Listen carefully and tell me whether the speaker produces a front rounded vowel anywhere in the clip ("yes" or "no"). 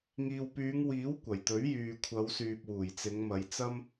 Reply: yes